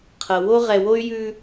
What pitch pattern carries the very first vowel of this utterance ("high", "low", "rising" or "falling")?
low